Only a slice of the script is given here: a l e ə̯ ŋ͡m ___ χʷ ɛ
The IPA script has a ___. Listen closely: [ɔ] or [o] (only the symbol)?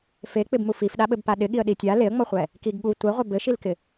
ɔ